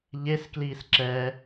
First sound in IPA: ʎ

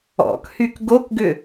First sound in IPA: ɔ̰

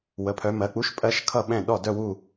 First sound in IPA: w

